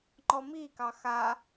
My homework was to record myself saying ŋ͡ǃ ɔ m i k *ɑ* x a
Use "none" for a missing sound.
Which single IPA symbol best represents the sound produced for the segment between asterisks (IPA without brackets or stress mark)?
ɑ